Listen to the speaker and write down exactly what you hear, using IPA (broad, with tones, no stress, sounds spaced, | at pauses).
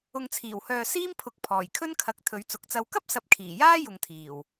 ʊ˨ ŋ t͡sʰ iː˨˩ w h œː˨ s iː˥ m pʰ ʊ˨˥ k̚ pʰ ɔː˨˩ j kʰ ɵ˥ n kʰ ɐ˨˥ k̚ t̪ʰ ɵ˨˧ ɥ t͡s ʊ˨˥ k̚ t͡s ɐ˧ w k ɐ˥ p̚ s ɐ˨˥ p̚ kʰ iː˨˩ j aː˥ j ʊ˨ ŋ t̪ʰ iː˨˩ w